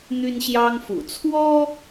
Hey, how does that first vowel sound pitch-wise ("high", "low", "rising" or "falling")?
high